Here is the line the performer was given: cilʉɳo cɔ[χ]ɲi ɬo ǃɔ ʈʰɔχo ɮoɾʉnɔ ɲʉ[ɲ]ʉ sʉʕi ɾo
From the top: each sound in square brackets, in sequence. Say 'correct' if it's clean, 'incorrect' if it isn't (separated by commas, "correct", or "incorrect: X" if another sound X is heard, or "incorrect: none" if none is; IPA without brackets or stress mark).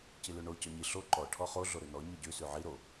incorrect: none, incorrect: ɟ